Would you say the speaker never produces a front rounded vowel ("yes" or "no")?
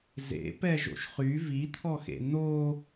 no